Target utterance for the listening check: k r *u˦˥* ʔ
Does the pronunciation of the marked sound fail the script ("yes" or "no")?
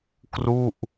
yes